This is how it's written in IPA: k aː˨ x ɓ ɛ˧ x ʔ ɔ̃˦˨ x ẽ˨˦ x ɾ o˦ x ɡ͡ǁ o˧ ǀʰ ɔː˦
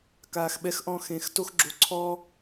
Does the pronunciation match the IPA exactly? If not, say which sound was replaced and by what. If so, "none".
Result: ɾ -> t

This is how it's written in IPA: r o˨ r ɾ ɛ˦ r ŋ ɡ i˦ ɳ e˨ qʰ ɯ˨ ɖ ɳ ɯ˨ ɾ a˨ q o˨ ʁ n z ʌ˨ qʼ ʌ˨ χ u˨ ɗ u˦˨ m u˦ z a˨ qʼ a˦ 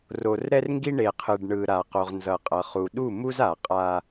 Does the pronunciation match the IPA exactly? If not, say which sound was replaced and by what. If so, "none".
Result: none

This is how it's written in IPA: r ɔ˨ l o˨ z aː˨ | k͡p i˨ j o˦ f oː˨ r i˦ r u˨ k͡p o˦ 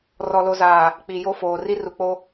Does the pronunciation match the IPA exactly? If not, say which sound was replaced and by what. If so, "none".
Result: none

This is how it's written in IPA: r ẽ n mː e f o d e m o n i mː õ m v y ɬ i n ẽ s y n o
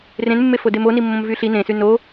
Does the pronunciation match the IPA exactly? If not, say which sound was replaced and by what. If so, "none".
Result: none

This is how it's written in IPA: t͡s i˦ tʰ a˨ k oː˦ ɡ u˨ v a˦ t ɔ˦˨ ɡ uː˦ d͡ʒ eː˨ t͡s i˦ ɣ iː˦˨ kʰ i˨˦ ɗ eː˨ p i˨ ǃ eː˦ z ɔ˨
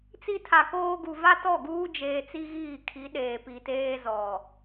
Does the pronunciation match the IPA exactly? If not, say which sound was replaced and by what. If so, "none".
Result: ǃ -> t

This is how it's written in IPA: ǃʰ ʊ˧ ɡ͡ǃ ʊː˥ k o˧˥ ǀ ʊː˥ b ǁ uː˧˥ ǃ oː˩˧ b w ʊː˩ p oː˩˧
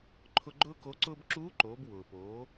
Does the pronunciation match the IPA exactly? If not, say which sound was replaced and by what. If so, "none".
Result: none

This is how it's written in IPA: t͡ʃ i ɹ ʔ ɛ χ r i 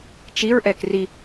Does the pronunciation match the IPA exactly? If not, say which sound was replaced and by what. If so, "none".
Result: χ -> k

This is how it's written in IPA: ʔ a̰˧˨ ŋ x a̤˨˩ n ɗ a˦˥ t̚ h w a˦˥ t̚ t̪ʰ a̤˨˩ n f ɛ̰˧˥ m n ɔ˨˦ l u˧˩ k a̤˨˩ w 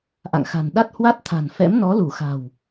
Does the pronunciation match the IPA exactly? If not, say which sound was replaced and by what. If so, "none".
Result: k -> x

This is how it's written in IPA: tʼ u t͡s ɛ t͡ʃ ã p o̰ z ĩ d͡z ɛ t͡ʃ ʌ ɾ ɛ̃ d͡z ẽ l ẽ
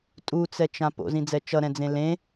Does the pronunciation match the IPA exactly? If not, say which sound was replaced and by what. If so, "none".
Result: none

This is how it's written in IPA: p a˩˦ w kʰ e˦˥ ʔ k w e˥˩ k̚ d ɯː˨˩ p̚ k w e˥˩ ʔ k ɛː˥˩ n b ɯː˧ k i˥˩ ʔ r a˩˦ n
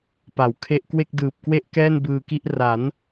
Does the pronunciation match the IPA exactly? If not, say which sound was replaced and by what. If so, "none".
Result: none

